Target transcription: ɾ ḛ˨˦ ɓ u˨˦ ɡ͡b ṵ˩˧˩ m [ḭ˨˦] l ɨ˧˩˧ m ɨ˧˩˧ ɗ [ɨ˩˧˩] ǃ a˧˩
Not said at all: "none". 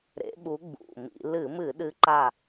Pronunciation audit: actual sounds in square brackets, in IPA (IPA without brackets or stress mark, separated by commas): ḭ˧˩˧, ɨ˨˦